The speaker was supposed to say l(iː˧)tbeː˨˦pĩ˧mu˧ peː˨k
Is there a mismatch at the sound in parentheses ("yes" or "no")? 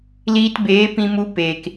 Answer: no